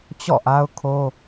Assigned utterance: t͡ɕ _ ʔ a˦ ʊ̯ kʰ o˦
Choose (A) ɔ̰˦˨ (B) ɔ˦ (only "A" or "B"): A